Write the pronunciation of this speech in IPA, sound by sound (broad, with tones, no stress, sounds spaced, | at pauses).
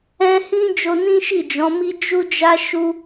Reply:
ɛ̃˧ h ĩ˦ d͡ʒ o˧ n ĩ˦ ʃ i˦˨ d͡ʒ ɔ̃˨˦ m i˦ d͡ʒ u˦ d͡ʒ a˦ ʃ u˦